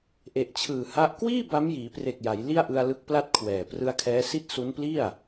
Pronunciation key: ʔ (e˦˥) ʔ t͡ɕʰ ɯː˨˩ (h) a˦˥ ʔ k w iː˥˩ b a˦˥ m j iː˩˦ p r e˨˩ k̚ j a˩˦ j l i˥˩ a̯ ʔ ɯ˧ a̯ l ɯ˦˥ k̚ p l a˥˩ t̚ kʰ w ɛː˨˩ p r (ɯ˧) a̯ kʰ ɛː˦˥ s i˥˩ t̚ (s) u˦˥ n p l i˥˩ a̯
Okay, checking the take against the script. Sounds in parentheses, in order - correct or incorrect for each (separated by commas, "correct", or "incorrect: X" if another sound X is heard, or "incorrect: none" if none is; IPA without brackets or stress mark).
incorrect: e˨˩, correct, correct, correct